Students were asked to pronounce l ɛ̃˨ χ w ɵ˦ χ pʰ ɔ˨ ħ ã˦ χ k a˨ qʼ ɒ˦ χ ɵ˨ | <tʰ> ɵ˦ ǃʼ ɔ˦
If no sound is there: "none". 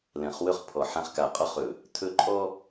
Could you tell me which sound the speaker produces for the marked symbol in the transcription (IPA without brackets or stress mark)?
tʰ